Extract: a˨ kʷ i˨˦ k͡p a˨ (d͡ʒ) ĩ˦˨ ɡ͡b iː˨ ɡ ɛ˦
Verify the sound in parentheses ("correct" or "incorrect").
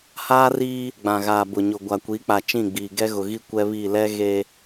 incorrect